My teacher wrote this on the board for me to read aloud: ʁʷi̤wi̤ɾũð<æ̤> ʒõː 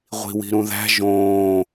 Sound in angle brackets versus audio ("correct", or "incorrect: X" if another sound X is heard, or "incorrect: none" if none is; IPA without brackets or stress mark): correct